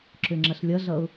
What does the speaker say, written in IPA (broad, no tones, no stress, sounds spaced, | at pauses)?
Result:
ǁ ʏ ŋ͡ǁ ɐ ɬ lʲ ʌ ɮ ʌ ʊ̯